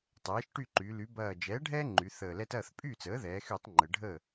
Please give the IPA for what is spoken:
tˤɛː˩˥ʃʈy˥˩ǃy˩˧ ly˩˧bɐː˨˩d͡ʒɛː˩˥ɖʱɛː˦ ŋ͡ǃy˩˧θəː˨˩lɛ˦t ɐː˥˩θpʼy˥˩t͡səː˩˥ ðɛː˩˧xy˧˩˧tˤ ŋ͡ǃə˩˧ɖʱəː˥˩

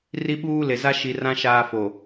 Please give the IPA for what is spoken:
ri˦ɓuː˦le˨ za˦ʃi˨rã˦ ʃaː˦fo˨

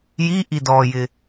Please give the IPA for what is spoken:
ji ʔidɔjɪ

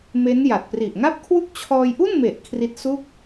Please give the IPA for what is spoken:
me˦˥n ja˨˩t̚pri˨˩ʔŋa˥˩p̚kʰwu˥˩k̚ t͡ɕʰɔː˧jʔu˥˩nme˨˩ʔ kʰri˦˥t̚su˥˩k̚

